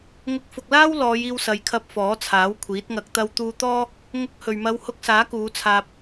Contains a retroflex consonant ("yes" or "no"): no